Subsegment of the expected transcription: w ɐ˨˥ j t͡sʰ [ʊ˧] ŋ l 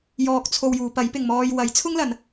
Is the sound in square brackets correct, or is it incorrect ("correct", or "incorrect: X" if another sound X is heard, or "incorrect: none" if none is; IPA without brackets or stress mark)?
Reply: incorrect: ʊ˥